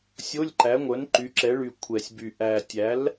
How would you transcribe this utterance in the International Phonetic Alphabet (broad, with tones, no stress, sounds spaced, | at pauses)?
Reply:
sʲ o˧˥˧ lʲ ǃ æ˩˥ ŋʷ œ˩˥ n ǃ y˩˥ ǁ ɛ˩˥ ɭ y˨˩ kʷʰ ɛ˨˩ sʲ b y˨˩ ʔ æ˨˩ tʲ æ˩˥ l